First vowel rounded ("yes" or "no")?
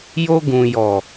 yes